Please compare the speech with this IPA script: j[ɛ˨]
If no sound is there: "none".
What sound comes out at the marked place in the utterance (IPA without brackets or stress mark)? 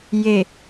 e˨